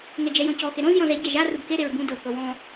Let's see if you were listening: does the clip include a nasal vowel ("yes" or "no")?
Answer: yes